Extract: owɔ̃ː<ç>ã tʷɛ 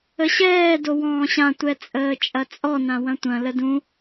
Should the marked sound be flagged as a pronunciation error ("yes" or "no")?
yes